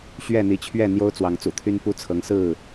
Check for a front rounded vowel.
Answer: present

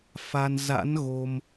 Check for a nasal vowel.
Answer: absent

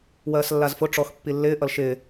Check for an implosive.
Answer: absent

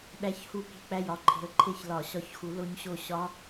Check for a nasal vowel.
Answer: absent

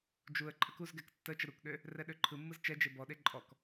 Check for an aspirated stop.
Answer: present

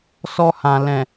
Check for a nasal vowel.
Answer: present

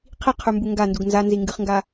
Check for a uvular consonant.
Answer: present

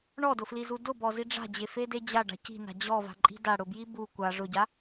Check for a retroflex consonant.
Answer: present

